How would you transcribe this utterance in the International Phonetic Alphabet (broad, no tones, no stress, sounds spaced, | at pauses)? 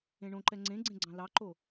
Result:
ẽ ɳ õ ǃ ɛ ŋ͡ǀ ẽ ɡ͡ǀ ẽ ɡ͡ǀ ɑ̃ l ɑ ǃ o